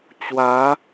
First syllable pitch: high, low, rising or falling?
rising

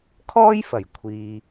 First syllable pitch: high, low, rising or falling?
high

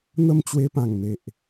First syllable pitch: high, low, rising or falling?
falling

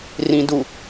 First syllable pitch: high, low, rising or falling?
low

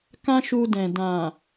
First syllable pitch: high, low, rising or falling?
high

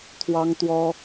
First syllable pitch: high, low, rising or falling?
high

